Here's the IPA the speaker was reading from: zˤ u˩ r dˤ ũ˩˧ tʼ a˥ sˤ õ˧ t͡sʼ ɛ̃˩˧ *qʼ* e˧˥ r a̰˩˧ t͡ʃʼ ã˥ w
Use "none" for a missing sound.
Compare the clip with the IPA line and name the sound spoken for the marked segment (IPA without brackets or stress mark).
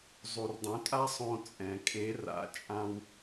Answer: kʼ